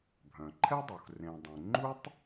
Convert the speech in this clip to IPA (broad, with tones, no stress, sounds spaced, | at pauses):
bʱ œ̃˩ ǃʰ ɛ˥ dˤ u˩ x r ẽ˩ dˤ ẽ˩ ŋ͡ǃ u˥ tˤ